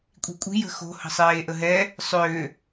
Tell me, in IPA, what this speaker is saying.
kʷʼ i̤ kʷʼ i̤ j ə̤ x o̤ h ə̤ sˤ eː ʔ ə ɦ ɛ | sˤ ʏː

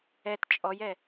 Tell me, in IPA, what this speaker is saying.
ɛ t t͡ʃʼ ɔ j ɛ

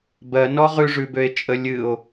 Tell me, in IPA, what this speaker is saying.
b ɜ n ɔ ʁ ʉ ʐ ʉ b ø e̯ t͡ʃʼ ə lʲ ɨ o̯

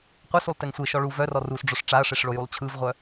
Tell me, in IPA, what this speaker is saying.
qʷ ə s u lˠ t e ŋ sʷ e ʃ ɔ ɭ u v œ r ɔ r u s ɖ͡ʐ o ʂ ʈ͡ʂ a ɐ̯ ʂ e ʂ ɭ o j u lˠ t͡ɕʰ ɯ v ʁʷ œ

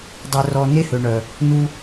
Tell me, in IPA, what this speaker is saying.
dˤ ø˧ r ɔ˧ n e˦ h ø˨ ɳ œ˨ | n u˦

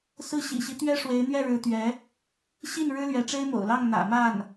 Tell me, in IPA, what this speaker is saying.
s ɹ̩˥˩ ɕ ḭ˨˩ ɕ i˦ t̪ ɥ ɛ˥ ʂ w e˧˥ ɪ̯ n̪ ɥ ɛ˥˩ ɻ ɻ̩˧˥ t̪ ɥ ɛ˧˥ | ɕ i˥˩ n ɻ ɻ̩˥ l ɥ ɛ˧˥ ʈ͡ʂ e˥ ɪ̯ m o̰˨˩ ʊ̯ l ɑ˥˩ ŋ n̪ ä̰˨˩ m a˥˩ n

